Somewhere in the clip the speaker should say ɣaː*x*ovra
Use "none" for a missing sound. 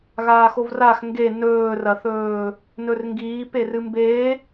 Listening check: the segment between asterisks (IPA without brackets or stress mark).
x